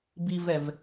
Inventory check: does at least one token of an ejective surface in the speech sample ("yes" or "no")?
no